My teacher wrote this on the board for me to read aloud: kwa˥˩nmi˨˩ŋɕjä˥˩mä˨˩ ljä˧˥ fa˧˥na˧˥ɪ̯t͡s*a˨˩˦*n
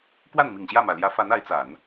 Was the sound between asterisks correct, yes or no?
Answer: yes